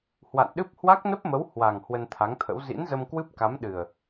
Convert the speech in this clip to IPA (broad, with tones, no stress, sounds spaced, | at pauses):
h w a̰˧˨ n ɗ ɨ˦˥ p̚ h w a˦˥ k̚ n ə˦˥ p̚ m ə˨˦ w h w a˨˩ ŋ h w ə˧ n t̪ʰ a˨˦ ŋ t̪ʰ ə̰˧˥ w z ḭ˧˥ n z ə˧ m k w ɨ˦˥ p̚ k a˨˦ m ɗ ɨ˨˩ ə̯